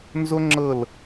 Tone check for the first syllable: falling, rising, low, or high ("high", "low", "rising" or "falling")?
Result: high